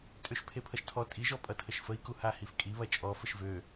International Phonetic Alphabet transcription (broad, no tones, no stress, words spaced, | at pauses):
tʼøʃpʰepʰʌʃtʰɔ tʼiʒɔ pʼʌtʰəʃfəi̯ku hahifkʼi βɐt͡ʃʼɔ fəʃvø